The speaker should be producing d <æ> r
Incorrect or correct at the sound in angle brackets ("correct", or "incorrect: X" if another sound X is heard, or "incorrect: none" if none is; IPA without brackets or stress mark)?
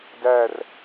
correct